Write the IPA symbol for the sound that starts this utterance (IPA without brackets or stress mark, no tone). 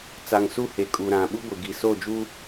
t͡s